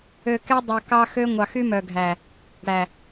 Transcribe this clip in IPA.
ø˨kɛ˦dˤo˨kɑ˦ xø˦ ŋʷɑ˨xy˦mœ˨ɡʱæ˨ | ɽæ˨

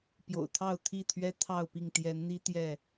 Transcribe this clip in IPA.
pjo̰˨˩ʊ̯t̪ʰɑ˥˨ʊ̯t̪ʰi˥˨t̪ʰɥɛ˦ t̪ʰɑ˥˨ʊ̯pi˥˨ŋ t̪jɛ˨˦nn̪i˦ t̪jɛ˥˨

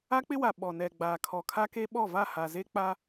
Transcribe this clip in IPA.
a˦k͡pɪ˦wa˨ ɓɔ˨ nɛ˨ɡ͡baː˨ kʰɔ˨kʰa˦ke˦ ɓɔ˦˨va˦˨ ha˨ze˦ k͡pa˦

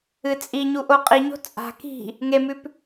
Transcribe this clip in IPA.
ɨt͡sʼiɲuʔo qʼiɲo̤ t͡sʼa̤ ki̤ | ŋemʉp

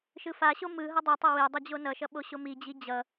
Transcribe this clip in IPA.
ʃɯfaɕo mɯ ɦʌdˤɛtˤʌ we dˤʌd͡ʑonʌʃʌ ɓoɕomid͡ʑi d͡ʑʌ

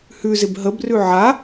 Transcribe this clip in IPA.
hʉzɪb ɦəbrʉ ʕa

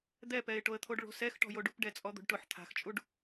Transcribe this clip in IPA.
d̪ɛpɛɪ̯ʈoə̯t̪ʰoɖ ɭo̤sɛxʈɔ̤jo ɖupɖɛt͡sʼɔd̪o̤ɖ ʈʊħ t̪ʰa̤xt͡ʃʼuɖ

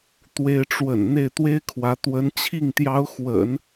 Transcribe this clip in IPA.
t̪we˥ɪ̯ ʈ͡ʂwə̰˨˩n n̪e˥˩ɪ̯t̪we˥ɪ̯kʰwä˧˥ t̪wə˧˥nt͡ɕʰi˥˩ŋt̪jɑ˧˥ʊ̯ xwə̰˨˩˦n

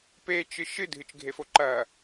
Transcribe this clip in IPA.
pet͡ʃɨ ʃɨdʱɨt͡ʃɡʱefo ǃɐ

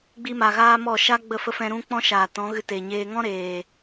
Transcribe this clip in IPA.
ɡ͡bi˦ma˧ɣaː˦mɔ˦˨ ʃa˦ ɡ͡bə˦˨fə˦ fɛ̃˧ɾũ˦ k͡pɔ̃˦ʃaː˨tɔ̃˨˦ɣɨ˧ te˨ɲeː˧ ŋɔ̃˦ ɾeː˨

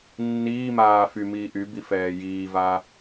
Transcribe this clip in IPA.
nːiːmaː fymiː ʔybi fɛːjiːva

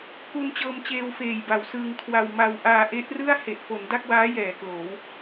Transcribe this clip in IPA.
ku˧nt͡ɕɤː˧mt͡ɕeː˧w feː˨˩jba˩˦wsɯː˧ŋkʰwa˧w ma˧w ʔaː˧ʔe˦˥ʔrɯ˥˩a̯ he˨˩ʔfo˩˦n da˥˩k̚waː˦˥ jɛː˩˦kloː˩˦w

